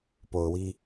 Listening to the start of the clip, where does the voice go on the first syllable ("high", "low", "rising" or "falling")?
low